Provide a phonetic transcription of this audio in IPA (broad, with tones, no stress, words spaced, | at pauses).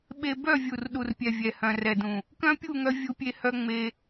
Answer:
ɓe˧ bœ˦˨ vʲu˨rɗu˨rpʲɛ˨ vʲɛ˨hœ̃˨rɛ˨dũ˨ | kœ̃˦pʲu˦˨ŋœ˧ vʲu˧pʲe˧hœ˧ ŋ͡me˧